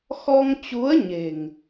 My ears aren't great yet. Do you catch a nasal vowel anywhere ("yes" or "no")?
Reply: no